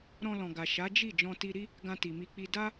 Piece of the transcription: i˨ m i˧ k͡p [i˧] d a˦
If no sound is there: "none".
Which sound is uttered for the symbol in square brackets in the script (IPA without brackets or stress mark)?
i˧